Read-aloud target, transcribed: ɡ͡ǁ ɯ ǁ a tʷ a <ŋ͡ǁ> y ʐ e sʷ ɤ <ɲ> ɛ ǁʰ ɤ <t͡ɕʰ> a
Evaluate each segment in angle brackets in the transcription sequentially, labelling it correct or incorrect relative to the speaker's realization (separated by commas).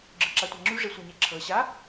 correct, correct, incorrect